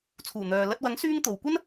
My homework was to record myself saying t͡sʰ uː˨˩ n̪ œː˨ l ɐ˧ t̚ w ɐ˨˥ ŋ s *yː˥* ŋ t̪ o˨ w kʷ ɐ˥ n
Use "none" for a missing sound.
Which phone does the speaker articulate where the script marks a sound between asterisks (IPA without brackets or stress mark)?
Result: yː˥